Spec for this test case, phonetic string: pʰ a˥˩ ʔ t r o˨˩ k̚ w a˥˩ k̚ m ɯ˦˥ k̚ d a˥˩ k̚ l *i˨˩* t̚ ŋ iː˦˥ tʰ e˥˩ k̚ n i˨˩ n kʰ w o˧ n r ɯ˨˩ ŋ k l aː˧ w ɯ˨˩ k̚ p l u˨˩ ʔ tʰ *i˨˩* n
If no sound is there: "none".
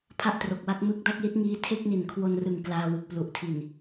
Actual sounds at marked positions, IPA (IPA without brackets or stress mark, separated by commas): i˦˥, i˨˩